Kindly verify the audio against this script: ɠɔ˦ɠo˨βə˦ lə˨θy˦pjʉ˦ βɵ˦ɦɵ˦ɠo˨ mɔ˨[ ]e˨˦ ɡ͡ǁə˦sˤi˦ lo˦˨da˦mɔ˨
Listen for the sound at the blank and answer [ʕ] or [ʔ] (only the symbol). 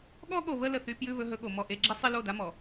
ʔ